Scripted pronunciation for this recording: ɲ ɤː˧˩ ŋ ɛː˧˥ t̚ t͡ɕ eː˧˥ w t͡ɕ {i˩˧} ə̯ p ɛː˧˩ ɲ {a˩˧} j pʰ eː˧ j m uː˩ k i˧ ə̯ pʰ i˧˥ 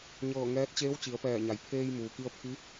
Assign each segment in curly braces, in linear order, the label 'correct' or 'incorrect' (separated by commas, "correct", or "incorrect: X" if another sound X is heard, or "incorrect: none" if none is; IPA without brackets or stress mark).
correct, correct